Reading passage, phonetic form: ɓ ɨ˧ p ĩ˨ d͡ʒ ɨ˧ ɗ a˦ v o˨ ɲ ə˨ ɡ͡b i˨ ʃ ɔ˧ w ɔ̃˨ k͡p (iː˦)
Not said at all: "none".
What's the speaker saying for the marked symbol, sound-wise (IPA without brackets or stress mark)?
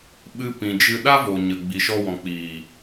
iː˨